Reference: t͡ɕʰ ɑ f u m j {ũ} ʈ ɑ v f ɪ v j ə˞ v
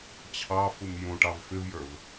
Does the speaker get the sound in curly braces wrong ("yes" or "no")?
no